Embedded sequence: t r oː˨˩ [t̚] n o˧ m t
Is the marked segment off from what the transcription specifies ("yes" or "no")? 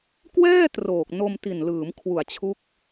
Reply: yes